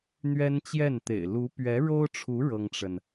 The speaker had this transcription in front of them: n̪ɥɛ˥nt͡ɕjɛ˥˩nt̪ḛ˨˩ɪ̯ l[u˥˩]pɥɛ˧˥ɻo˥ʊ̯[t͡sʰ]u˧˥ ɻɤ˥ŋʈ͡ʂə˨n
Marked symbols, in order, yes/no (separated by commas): no, no